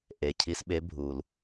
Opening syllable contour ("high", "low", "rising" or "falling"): low